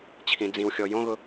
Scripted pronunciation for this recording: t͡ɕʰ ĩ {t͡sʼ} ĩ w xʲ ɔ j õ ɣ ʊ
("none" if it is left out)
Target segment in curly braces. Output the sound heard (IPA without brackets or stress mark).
d͡z